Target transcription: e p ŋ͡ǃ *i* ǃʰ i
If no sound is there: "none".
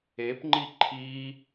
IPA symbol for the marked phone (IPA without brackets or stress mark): i